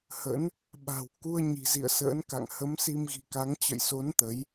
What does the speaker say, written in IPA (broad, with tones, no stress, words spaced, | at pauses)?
hə̰˧˥n | ɓa̤˨˩wku˧ə̯ ɲi̤˨˩zḭ˧˨ə̯sə̰ː˧˥nka̰˧˨ŋ hə˨˦msi˧mɣi̤˨˩ka˨˦ŋ t͡ɕə̰˧˨jso˨˦n t̪ə˨˦j